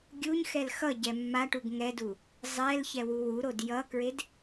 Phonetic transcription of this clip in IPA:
ɡʲuɲxɛl xʌ ɟɛmːaʈuɡ ŋɛdu | zˤɛl çɛwuwuɾod jʌkɹed

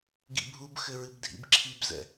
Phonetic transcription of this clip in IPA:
ɡḭbʱubxɘ ɹɨbdʱḭbǁʰibzɛ̰

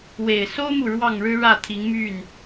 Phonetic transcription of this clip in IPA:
we˨˩ɪ̯so˥ʊ̯mu˨ ɻwɑ˥˩ŋɻɻ̩˥ ɻä˥˩t̪ʰi˧˥ŋmy˥˩n

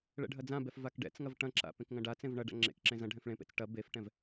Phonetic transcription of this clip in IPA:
ɭɛ̰ɖʱɐd͡zãbɛf vakɖɛ̰t͡sŋɐv ʈɐ̃ǁa̰ pẽkŋɐ̃ɖat͡sẽv ɳɐ ɖa̰ŋ͡ǁḛkǁẽ zɐ̃ ɖʱɛ̃fɭẽpḛt͡s ʈɐ befʈɛ̃v

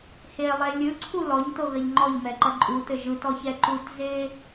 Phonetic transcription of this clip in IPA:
helˠe lʲɯǀʰu lɔɲtoɣɐʎ ŋ͡ǃɔʎmɛǃɐ ǃʼutɘ ʒɯtɔçɛ ǃutze

